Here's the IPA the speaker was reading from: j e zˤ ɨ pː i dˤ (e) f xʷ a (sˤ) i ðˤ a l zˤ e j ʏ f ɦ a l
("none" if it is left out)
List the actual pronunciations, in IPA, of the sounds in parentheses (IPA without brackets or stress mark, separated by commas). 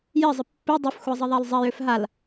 ɨ, zˤ